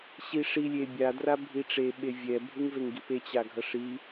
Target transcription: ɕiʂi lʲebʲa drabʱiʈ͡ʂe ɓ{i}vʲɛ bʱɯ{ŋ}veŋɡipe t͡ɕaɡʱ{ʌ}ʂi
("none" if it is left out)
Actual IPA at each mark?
e, ŋ, ʌ

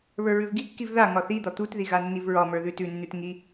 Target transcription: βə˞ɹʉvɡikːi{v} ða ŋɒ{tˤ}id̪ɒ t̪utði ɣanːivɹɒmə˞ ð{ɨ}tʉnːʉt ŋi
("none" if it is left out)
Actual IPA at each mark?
v, θ, ʉ

